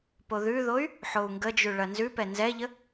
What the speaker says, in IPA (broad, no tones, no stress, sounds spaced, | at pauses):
p o ð ʉ ð o y̯ | ħ o u̯ ŋ ɡ ə d͡ʒ ʉ ɭ ɐ n z ʉ p ɛ n z ɛ ʎ ə